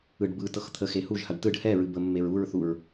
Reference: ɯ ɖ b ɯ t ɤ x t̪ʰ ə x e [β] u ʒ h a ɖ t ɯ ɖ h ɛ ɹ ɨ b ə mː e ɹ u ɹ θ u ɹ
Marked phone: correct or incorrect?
incorrect